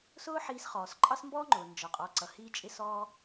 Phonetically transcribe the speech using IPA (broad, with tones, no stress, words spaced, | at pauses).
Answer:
sʊː˥ħiː˧sχɔː˩s ǃʼɑ˥smbɔː˥ŋ͡ǃʊː˩ nd͡ʒɒ˩qʼɔ˩ ǀʌ˩hiː˧t͡ʃʼɪ˧ sɔː˧